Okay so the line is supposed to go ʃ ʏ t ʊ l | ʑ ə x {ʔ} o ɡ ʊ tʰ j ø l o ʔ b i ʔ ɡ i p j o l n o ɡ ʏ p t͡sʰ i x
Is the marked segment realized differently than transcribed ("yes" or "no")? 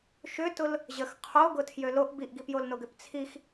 yes